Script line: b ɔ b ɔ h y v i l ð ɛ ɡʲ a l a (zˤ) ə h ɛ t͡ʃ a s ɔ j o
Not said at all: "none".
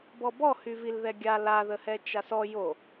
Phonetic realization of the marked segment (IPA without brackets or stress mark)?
ð